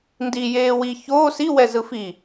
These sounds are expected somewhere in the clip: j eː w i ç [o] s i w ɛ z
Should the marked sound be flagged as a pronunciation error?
yes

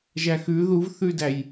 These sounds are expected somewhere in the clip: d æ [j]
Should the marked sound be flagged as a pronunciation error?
no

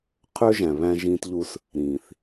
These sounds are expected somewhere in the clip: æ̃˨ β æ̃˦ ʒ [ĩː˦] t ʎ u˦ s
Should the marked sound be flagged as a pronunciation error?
no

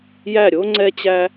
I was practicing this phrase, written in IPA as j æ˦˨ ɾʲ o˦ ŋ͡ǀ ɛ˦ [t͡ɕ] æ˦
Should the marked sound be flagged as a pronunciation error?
no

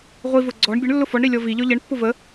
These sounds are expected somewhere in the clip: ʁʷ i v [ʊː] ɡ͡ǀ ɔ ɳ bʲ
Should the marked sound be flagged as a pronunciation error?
yes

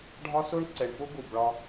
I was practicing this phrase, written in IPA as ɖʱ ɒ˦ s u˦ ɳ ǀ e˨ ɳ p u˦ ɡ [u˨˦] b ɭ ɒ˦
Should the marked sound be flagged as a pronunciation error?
yes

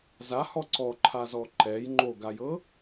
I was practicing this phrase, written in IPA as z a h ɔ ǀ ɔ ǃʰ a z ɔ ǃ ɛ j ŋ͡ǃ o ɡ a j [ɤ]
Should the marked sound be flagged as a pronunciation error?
no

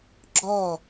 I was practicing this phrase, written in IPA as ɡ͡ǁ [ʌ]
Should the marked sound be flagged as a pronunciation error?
yes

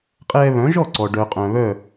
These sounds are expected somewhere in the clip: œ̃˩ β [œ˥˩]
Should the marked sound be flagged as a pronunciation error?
no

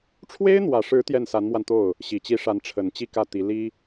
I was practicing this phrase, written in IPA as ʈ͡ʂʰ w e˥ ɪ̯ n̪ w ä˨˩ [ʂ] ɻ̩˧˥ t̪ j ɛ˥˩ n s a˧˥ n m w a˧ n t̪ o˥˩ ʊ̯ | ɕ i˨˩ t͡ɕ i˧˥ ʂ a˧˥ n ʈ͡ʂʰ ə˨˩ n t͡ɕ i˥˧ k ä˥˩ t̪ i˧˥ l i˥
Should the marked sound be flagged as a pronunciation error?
no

